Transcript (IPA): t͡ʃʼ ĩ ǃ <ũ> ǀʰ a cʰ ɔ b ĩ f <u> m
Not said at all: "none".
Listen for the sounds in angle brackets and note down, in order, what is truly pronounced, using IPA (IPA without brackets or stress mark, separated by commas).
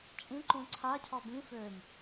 ũ, ø